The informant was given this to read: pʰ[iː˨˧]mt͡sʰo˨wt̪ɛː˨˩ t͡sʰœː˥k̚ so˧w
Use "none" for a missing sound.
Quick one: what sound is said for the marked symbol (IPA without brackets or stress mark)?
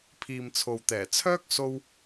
iː˨